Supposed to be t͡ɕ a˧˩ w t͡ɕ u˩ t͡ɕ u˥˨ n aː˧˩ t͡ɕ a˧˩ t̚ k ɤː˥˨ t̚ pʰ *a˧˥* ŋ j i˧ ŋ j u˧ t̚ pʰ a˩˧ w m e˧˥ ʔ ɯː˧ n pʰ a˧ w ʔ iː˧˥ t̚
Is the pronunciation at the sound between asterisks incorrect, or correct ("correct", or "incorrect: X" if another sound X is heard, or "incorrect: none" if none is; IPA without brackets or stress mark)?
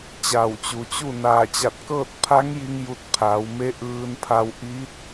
correct